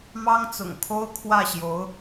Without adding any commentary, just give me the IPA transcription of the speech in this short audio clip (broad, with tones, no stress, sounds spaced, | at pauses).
m ɑ˥ ŋ t͡s ʊ̰˨˩ ŋ kʰ o˥ ʊ̯ kʰ w ä˥˩ ɕ j o˧˥ ʊ̯